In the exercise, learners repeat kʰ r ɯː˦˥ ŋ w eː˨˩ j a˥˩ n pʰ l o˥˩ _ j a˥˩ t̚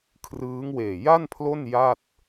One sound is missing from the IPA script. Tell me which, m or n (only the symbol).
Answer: n